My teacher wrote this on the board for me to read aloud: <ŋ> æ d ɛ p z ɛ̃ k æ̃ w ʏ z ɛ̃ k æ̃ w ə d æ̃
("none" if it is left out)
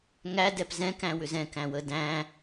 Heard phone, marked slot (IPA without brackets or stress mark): ŋ